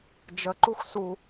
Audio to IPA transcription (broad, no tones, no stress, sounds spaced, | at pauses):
d͡ʒ ə ǃ u x s u